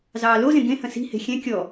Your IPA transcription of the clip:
z ɑː l o z ẽ ɡ ẽ h ə̃ s i̤ h e̤ xʲ ɛ̃ kʲ ɔ

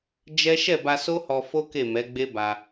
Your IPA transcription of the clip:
d͡ʒ ɛ˦ ʃ ɛ˦˨ b a˧ s o˦ h ɔ˧ f o˦ k e˦˨ m ɛ˨˦ ɡ͡b e˦ b a˧

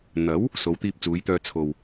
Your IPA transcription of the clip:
n̪ ɐ˨˥ w | s o˨˧ w t̪ iː˧ p̚ t͡s uː˨˧ j t̪ œː˧ t͡sʰ o˨ w

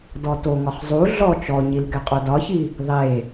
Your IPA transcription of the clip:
d ɔ t o ŋ ɒ χ zˤ u ɮ ɔ t͡ʃ ɔ ɲ i l ɡ ɛ qʼ o d ɒ ç i | ðˤ e

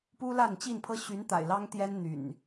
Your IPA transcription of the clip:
p u˦ l a˥˨ n t͡ɕ i˥˨ n pʰ ɤ˦ ɕ y˨˦ n t̪ a̰˨˩ ɪ̯ l ɑ˦ ŋ t̪ j ɛ˦ n n̪ y̰˨˩ n

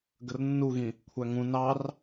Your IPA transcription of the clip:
ɡ ə r nː u ɣ ĩ | kʷʰ æ ŋ ũ n ɑ r

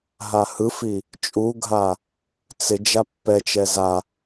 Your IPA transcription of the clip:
ɦ a h ɯ f i | t͡ʃʼ u ɡʱ a | t͡s ɪ d͡ʒ a pː ɛ t͡ʃ ɛ z a

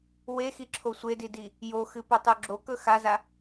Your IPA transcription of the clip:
w e x i ǁʰ o sʷ e d i d i | j o x ɨ p ɵ tˤ u ɡ͡ǁ o k ɵ x a z a

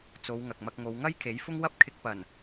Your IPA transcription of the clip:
t͡s o˨˧ w ŋ ɐ˨ k̚ m ɐ˧ k̚ ŋ o˨˧ w ŋ ɐ˥ j kʰ e˨˥ j f ʊ˥ ŋ w ɐ˥ p̚ kʰ ɪ˧ k̚ p ɐ˨˩ n

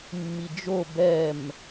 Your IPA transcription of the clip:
mː i d͡ʒ o b ɛ m

